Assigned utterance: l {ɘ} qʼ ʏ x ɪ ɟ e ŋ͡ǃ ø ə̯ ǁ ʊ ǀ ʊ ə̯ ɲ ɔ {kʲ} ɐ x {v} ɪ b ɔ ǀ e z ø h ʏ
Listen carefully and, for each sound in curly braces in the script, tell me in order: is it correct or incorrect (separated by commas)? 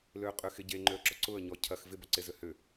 incorrect, incorrect, correct